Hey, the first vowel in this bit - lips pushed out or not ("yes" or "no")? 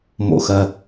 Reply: yes